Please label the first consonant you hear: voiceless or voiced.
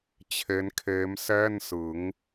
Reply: voiceless